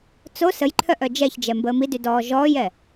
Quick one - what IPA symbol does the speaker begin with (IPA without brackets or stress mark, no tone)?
t͡s